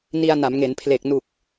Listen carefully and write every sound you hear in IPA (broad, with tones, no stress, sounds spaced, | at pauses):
n i˧ a̯ n a˩˦ m ŋ e˩˦ n pʰ l e˨˩ k̚ n u˨˩ k̚